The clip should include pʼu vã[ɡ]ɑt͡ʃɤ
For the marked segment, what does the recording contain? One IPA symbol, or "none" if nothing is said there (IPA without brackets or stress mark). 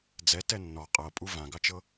ɡ